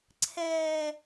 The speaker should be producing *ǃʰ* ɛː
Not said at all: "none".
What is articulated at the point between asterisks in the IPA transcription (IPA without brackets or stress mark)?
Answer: ǀʰ